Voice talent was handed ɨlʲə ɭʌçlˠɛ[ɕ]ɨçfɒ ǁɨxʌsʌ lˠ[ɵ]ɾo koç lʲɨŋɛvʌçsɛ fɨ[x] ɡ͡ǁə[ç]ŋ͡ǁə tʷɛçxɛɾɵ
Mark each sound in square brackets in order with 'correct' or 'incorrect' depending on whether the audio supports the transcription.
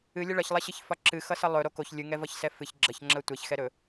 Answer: correct, correct, incorrect, correct

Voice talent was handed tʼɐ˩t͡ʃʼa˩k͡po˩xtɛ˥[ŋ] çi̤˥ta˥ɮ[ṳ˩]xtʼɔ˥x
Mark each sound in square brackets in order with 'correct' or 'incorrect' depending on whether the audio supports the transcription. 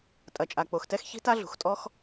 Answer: incorrect, correct

